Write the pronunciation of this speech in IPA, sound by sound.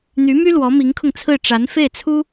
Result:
n̪ y˧˥ m y˥ l w ɔ˧˥ m i˧˥ ŋ kʰ ʊ˧ ŋ t͡sʰ ɹ̩˥˩ ʈ͡ʂ a˧˥ n f e˥˩ ɪ̯ t͡sʰ u˥

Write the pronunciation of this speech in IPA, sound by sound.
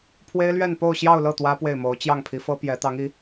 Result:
pʰ w e˥ ɪ̯ l ɥ ɛ˥˧ n p o˥˧ ʊ̯ ɕ j ɑ˥˧ ʊ̯ l ɤ˥˩ t̪ w ä˥ p w e˥˩ ɪ̯ m o˧˥ ʊ̯ t͡ɕ j ɑ˥˩ ŋ pʰ i˧˥ f ɤ˥ p j ɛ˧˥ t̪ ɑ˧˥ ŋ i˧˥

